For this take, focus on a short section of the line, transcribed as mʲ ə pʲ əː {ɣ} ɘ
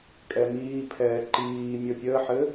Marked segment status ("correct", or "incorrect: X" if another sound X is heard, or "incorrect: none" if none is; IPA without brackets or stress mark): incorrect: ħ